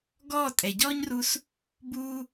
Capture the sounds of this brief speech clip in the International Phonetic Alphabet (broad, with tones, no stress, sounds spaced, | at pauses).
ɡ ɔː˦˨ tʼ ɛ˨ ɟ ɔ˦ ɲ r u˧ s | b uː˦